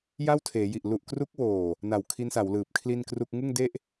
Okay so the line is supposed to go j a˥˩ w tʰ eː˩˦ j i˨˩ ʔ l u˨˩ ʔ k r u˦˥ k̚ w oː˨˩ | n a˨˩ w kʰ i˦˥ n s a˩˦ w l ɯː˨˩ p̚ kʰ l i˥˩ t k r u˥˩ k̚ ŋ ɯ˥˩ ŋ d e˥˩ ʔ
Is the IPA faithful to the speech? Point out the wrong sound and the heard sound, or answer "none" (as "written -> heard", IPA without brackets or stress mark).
t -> n